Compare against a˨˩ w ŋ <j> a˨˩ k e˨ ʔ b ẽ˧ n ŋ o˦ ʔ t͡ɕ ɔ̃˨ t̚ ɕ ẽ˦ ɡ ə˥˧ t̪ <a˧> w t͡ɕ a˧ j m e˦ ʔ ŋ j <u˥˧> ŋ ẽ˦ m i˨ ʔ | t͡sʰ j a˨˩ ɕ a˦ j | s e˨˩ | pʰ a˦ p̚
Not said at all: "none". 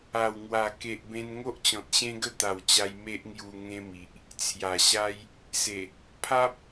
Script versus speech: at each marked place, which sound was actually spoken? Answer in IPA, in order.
w, a˨˩, u˧

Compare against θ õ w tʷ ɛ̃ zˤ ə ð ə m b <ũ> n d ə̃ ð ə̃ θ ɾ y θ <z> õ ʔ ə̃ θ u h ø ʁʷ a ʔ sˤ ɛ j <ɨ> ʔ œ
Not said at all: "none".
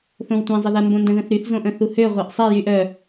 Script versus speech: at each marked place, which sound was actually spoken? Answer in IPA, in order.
õ, z, y

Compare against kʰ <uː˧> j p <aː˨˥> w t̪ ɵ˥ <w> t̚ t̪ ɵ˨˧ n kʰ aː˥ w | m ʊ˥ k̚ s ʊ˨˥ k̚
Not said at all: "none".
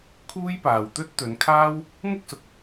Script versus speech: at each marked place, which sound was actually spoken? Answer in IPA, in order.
uː˥, aː˨, none

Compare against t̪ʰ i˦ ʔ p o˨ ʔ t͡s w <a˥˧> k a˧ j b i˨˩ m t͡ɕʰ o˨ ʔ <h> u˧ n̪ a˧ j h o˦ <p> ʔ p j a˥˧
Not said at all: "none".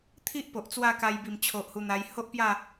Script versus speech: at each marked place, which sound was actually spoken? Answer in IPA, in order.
a˥˧, h, none

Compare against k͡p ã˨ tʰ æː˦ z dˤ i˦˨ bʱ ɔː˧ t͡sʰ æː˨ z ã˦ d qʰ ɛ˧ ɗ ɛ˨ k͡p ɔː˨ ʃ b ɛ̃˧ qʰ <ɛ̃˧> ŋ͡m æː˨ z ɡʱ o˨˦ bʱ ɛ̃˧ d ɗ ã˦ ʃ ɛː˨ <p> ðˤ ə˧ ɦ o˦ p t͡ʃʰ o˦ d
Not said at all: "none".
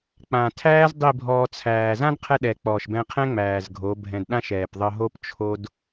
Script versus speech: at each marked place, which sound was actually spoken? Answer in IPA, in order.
ɛ̃˦, p

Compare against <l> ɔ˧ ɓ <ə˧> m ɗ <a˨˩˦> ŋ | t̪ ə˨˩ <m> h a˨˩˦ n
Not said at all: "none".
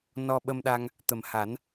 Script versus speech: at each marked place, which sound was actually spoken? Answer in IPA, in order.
n, ə˧, a˧, m

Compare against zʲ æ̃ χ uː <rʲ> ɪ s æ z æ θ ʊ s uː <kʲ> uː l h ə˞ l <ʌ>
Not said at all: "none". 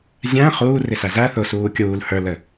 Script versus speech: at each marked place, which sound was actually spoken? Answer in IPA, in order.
r, kʲ, ə

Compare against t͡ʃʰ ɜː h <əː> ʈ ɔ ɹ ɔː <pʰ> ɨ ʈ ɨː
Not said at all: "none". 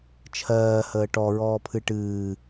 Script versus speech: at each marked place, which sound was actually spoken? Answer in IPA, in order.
əː, pʰ

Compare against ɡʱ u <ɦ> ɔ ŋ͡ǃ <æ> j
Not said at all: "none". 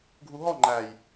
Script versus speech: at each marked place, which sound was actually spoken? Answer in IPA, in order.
ɦ, æ

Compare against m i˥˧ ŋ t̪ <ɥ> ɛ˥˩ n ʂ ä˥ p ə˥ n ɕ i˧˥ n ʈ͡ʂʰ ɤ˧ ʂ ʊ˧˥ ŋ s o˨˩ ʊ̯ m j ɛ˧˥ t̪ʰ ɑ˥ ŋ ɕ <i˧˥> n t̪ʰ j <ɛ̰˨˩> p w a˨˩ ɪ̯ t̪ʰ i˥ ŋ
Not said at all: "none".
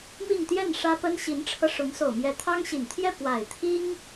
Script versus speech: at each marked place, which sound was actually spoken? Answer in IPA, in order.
j, i˨˩, ɛ˥˩

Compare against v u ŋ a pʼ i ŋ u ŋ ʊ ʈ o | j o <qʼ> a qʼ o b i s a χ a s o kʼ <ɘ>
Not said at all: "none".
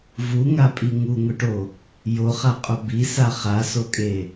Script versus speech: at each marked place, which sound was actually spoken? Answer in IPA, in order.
χ, e

